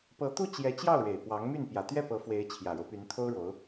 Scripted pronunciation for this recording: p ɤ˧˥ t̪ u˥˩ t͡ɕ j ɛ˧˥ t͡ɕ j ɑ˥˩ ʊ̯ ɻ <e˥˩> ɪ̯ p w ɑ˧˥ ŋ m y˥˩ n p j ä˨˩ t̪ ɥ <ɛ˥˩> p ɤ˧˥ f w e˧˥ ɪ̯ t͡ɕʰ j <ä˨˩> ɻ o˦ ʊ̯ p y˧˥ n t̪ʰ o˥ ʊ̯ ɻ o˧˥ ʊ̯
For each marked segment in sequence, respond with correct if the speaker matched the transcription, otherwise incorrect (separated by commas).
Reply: incorrect, correct, correct